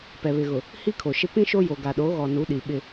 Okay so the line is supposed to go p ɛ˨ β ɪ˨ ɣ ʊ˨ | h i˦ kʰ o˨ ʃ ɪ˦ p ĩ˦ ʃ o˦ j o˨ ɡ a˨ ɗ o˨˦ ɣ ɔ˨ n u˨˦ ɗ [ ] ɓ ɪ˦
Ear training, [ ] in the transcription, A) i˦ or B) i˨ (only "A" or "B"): B